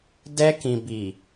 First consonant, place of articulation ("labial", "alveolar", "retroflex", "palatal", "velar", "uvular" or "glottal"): alveolar